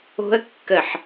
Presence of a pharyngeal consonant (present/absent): present